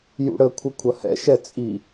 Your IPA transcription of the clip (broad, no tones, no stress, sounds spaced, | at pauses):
j ṵ ɽ ə kʷʰ ə kʷʰ ɐ h ɛ̰ ʃ ɛ t͡sʼ i